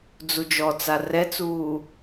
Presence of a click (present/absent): absent